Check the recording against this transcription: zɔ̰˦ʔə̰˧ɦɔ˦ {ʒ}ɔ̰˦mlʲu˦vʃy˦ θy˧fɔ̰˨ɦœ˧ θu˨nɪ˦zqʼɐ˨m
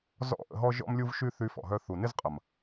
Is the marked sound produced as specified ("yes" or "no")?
yes